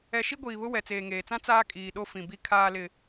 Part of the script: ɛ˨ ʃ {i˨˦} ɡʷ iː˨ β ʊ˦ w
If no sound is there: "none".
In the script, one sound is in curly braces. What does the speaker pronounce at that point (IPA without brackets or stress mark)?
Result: i˦